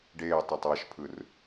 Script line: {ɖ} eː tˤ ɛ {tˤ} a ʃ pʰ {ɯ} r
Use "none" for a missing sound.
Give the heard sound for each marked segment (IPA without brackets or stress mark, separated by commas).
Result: ɖ, tˤ, ɯ